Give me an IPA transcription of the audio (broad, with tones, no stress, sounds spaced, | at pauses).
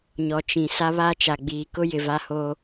ɲ ɔ˨ t͡ʃ ĩ˨ s a˦ β a˦˨ t͡ʃ a˨ ɡ͡b iː˨ k ʊ˦ j ɪ˨ v a˦ h o˦